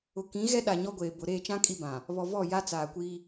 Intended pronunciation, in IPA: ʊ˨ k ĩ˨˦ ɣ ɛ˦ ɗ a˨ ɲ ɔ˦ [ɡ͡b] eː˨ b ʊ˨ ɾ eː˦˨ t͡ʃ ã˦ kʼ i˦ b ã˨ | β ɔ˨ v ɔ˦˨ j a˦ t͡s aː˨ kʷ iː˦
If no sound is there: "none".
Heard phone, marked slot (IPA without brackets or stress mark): ɡʷ